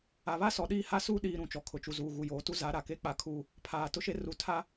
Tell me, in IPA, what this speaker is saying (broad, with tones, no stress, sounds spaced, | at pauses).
a˨ β a˦ s ɔ˨ ɗ iː˦˨ h a˦ s uː˦ ɗ iː˨ ɾ ũ˨ t͡ʃ ɔ˨ kʰ ʊ˨ t͡ʃ u˨ z uː˨ ɣ u˨ j oː˨ t u˦ z a˨˦ ɾ a˨ k e˦ k͡p a˦ kʰ uː˦ | pʰ aː˨ t ʊ˦ ʃ e˦ r u˨ tʰ a˦